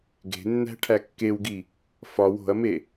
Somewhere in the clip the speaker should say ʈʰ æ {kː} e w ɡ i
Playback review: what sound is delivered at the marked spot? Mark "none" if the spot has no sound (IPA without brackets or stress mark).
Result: kː